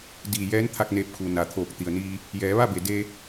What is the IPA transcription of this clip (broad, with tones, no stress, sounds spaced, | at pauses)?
d iː˧˩ j ɛː˧˥ n t̪ʰ a˧ k̚ n eː˧˩ p̚ kʰ u˩ n a˩ t̪ʰ oː˧˩ k̚ t̪ i˩ ə̯ n iː˧ | j ɛː˩˧ ʋ a˥˨ b e˩ d e˧